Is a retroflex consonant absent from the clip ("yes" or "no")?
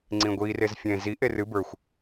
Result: yes